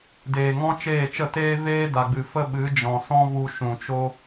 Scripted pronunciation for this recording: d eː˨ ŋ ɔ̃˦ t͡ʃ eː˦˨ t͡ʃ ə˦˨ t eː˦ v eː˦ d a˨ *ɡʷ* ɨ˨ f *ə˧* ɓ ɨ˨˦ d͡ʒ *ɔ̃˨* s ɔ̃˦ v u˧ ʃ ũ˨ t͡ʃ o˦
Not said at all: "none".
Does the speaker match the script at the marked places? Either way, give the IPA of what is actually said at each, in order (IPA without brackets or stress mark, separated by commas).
ɡ͡b, ə˦, ɔ̃˨